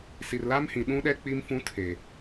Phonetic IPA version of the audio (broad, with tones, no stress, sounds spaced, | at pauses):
s i˨ r l a˦ m h ĩ˨ ɗ ũ˦ ɗ ɛ˦ k͡p i˦ m f ũ˦ tʰ e˨